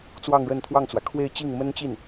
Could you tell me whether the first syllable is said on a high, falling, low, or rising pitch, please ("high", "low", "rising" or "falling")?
falling